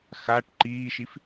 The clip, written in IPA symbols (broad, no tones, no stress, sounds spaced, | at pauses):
x a ʈ ǃ iː ʃ i f